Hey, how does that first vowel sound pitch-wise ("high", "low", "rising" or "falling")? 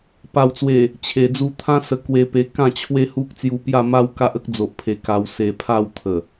low